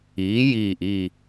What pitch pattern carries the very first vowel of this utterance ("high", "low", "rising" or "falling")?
rising